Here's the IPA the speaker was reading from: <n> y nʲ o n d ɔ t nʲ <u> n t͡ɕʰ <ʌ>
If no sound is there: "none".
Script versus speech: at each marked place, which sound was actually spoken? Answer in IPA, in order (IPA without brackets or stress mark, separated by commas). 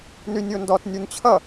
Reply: n, u, ʌ